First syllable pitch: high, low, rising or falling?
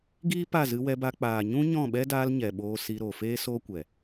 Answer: high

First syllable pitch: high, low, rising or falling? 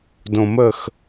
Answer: low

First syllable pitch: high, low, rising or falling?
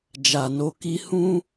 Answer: low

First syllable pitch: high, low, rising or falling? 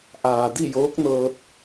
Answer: low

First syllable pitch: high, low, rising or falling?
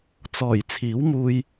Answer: low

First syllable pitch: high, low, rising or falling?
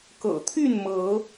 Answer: low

